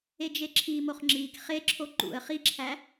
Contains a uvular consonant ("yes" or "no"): yes